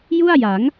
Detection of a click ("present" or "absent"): absent